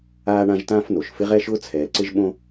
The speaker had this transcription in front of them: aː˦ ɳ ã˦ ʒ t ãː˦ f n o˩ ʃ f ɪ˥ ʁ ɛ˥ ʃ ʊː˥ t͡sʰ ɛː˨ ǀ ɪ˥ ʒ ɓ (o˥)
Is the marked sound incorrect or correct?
incorrect